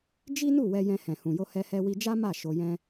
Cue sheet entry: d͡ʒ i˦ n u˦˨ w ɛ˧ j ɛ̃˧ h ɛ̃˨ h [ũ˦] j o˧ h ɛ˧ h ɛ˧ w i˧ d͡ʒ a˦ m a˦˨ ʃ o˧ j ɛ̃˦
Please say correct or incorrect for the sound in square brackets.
incorrect: ũ˨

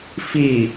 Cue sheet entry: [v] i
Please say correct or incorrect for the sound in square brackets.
incorrect: f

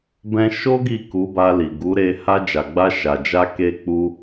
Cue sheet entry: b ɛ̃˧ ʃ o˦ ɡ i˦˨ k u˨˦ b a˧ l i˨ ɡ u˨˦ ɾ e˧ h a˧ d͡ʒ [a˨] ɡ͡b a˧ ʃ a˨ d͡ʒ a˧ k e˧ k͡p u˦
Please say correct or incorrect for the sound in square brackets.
correct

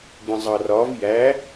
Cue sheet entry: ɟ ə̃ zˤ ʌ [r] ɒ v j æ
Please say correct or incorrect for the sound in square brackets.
correct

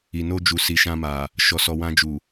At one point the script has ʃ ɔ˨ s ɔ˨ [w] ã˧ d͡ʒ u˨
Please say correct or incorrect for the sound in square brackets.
correct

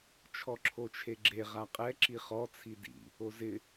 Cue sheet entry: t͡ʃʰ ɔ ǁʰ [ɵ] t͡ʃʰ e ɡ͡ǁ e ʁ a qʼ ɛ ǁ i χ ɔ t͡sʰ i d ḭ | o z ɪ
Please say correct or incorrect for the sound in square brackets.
incorrect: o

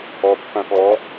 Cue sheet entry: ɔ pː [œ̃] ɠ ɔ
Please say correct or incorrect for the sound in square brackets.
correct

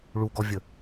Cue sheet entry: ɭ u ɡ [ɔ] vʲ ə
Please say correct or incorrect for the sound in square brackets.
correct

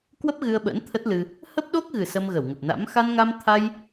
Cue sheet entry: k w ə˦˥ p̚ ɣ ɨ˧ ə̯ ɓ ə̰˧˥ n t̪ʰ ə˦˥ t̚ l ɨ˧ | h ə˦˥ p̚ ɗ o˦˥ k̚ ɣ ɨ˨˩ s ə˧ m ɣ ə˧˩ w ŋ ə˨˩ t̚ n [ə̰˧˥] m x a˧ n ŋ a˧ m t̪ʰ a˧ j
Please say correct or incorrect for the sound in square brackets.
incorrect: a̰˧˥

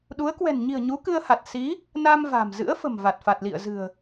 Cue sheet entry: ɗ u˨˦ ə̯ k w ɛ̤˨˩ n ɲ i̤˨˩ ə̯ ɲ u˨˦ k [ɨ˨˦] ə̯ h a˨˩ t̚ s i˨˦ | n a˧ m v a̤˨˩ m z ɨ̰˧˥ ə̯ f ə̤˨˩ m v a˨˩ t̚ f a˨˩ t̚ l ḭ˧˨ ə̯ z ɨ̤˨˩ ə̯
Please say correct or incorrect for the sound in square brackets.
incorrect: ɨ˧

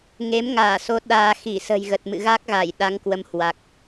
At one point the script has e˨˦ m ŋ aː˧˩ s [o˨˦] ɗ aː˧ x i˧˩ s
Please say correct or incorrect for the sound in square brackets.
correct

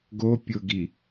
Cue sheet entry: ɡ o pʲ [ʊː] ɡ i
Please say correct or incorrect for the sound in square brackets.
correct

